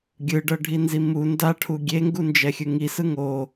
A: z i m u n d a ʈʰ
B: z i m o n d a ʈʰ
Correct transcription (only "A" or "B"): A